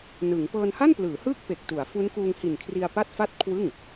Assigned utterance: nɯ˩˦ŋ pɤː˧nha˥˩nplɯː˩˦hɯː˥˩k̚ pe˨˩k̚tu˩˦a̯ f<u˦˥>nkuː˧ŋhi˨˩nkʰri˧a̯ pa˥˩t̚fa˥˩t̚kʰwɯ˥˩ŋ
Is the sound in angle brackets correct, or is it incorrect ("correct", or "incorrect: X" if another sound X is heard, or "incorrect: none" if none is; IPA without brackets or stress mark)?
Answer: correct